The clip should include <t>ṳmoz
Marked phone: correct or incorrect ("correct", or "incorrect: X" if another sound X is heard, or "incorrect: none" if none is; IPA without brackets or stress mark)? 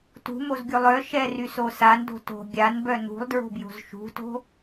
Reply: correct